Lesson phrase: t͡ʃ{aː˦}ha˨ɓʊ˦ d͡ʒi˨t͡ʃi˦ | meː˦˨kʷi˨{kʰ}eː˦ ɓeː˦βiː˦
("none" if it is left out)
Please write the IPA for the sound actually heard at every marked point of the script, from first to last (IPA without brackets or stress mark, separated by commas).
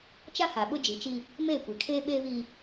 a˦, kʰ